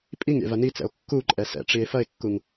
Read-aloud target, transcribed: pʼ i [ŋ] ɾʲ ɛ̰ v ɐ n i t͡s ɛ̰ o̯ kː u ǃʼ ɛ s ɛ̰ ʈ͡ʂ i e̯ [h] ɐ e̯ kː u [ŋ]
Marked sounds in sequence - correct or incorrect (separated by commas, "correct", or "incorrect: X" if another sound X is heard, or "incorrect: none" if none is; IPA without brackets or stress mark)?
correct, incorrect: f, correct